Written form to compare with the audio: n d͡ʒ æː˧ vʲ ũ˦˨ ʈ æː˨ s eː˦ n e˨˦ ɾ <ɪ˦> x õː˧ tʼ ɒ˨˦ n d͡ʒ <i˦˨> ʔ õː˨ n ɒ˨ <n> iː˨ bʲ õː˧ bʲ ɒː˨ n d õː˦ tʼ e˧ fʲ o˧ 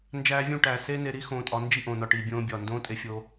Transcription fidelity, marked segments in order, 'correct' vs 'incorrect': incorrect: i˦, correct, incorrect: ʈ

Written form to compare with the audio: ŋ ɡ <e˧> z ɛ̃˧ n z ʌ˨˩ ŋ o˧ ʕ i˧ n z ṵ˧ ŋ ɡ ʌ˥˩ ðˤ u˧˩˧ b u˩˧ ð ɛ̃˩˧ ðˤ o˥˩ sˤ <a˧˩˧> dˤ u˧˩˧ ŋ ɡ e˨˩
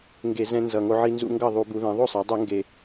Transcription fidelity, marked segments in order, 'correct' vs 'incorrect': incorrect: e˧˩˧, incorrect: a˩˧

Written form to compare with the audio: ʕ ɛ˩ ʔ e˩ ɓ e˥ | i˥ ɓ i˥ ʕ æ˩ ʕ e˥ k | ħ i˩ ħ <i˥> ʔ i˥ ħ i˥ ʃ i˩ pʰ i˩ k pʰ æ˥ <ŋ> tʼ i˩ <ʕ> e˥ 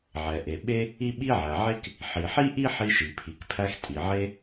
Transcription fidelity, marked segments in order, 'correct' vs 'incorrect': correct, incorrect: x, correct

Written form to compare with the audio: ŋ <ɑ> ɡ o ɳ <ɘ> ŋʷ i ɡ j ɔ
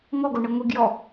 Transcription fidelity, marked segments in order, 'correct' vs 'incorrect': incorrect: ɔ, correct

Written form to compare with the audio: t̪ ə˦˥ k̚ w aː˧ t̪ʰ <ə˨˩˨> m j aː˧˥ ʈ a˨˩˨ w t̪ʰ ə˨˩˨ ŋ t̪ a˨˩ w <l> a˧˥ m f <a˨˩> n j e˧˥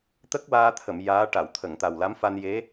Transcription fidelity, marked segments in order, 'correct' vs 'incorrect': correct, correct, incorrect: a˧

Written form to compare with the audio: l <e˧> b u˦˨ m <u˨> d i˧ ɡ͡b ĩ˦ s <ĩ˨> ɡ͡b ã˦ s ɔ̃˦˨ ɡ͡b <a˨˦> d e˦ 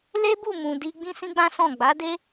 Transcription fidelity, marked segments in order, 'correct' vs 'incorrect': incorrect: e˦, incorrect: ũ˨, incorrect: ĩ˦, correct

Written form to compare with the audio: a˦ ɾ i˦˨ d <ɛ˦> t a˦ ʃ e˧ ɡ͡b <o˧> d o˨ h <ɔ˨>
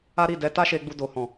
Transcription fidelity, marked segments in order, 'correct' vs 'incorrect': incorrect: ɛ˧, incorrect: u˧, incorrect: ɔ̃˨

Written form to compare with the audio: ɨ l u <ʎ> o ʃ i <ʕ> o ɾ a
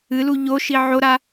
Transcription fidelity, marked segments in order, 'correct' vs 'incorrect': correct, correct

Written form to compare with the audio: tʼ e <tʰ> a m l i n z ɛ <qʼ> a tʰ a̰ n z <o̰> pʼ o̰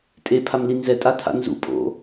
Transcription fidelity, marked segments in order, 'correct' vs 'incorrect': incorrect: pʰ, incorrect: tʼ, incorrect: ṵ

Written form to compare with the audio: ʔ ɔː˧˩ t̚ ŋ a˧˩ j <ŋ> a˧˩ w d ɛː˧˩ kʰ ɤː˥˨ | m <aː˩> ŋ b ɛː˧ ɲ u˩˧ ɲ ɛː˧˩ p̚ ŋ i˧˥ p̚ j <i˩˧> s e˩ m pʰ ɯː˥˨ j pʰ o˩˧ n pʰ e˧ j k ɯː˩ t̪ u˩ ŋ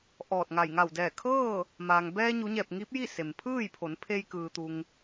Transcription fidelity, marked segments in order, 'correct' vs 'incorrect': correct, correct, incorrect: i˥˨

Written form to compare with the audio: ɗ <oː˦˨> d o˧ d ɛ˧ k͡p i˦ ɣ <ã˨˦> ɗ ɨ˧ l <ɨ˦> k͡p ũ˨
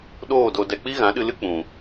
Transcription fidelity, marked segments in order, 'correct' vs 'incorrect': correct, correct, correct

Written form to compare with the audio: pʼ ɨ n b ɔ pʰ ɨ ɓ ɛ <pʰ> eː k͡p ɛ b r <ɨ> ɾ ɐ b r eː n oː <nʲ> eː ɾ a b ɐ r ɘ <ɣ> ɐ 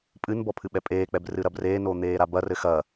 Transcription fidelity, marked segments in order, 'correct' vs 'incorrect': incorrect: pʼ, correct, incorrect: n̪, incorrect: x

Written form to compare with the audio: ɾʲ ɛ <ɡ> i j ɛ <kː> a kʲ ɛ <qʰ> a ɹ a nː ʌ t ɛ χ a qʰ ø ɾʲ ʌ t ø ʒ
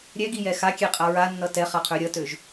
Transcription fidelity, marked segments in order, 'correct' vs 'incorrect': correct, incorrect: x, incorrect: qʼ

